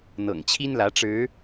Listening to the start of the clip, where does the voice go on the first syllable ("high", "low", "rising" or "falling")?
low